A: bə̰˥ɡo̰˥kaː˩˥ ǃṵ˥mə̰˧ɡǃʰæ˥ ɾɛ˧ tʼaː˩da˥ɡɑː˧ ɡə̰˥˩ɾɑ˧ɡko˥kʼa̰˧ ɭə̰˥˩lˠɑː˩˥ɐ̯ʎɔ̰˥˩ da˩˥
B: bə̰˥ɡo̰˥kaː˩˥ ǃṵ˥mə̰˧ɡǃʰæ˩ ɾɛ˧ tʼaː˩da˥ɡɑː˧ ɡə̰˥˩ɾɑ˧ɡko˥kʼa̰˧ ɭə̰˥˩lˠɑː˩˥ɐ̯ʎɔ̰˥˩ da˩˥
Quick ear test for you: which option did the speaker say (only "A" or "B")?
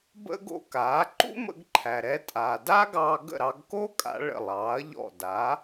B